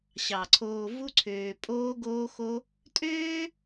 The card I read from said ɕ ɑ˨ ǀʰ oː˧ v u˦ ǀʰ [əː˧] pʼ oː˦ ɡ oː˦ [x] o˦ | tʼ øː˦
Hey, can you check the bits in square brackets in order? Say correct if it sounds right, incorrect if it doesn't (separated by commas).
incorrect, correct